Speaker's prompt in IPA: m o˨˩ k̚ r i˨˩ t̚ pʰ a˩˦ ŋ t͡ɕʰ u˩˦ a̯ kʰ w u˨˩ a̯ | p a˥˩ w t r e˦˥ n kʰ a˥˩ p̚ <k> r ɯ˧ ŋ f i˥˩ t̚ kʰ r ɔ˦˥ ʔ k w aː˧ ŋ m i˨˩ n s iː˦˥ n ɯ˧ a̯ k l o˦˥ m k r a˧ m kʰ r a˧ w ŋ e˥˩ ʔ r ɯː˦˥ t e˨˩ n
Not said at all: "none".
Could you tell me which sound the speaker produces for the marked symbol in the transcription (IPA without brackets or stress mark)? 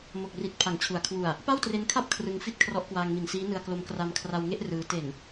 kʰ